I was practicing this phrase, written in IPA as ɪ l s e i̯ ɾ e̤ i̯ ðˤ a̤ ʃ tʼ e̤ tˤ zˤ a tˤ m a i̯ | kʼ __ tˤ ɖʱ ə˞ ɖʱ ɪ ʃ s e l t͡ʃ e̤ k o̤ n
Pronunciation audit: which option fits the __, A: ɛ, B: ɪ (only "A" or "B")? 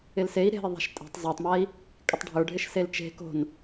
B